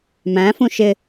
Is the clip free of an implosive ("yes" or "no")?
yes